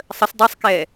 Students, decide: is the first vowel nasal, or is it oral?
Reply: oral